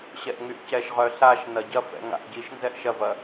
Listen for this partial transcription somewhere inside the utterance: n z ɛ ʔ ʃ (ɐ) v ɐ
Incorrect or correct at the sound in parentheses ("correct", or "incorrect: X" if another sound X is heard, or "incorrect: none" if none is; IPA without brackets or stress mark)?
correct